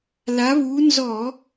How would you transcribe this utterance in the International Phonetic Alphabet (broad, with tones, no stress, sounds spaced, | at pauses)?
l a˨˦ β uː˨˦ n z ɔ˧˩˧